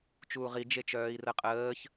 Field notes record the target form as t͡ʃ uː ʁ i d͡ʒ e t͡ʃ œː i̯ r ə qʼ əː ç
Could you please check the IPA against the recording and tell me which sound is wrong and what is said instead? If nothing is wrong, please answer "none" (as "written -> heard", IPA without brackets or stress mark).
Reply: none